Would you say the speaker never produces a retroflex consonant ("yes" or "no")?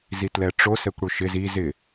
no